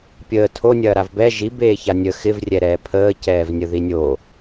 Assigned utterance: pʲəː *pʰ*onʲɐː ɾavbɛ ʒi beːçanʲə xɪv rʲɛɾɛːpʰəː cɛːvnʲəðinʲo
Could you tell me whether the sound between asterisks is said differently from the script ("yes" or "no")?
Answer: yes